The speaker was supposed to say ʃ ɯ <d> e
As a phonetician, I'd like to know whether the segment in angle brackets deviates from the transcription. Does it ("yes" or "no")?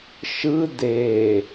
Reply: no